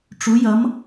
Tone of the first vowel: rising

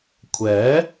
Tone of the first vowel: rising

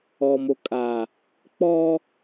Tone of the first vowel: low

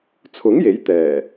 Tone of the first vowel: rising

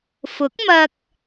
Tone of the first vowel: rising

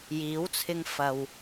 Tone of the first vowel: rising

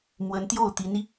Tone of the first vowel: rising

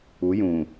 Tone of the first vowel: rising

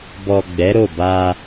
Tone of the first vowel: low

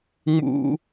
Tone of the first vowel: high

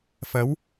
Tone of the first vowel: rising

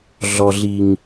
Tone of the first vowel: low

